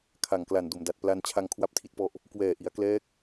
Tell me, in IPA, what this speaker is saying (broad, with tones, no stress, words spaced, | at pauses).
kʰa˨˩ŋkla˨˩n do˨˩mda˨˩t̚ pla˧n t͡ɕʰa˧ŋkʰwa˦˥p̚tʰi˦˥t̚pɔ˦˥ʔ | kwɛː˨˩ʔi˩˦a̯klɛː˦˥k̚